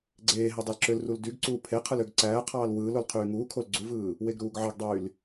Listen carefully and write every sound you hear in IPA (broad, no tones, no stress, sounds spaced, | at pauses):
ɡ͡ǀ eː ɦ e dˤ ɑ l ǁ ø l r u l d y ɡ ǀ uː pʰ e qʰ ɯ l ø ɡ ǀ æː qʰ ɑː l w ɯː l o l qʰ yː ŋ uː kʰ o l ɡ͡ǀ u v ɯː | w e ɡ ɾ uː ɡ ʕ ɑ ɡ dˤ yː l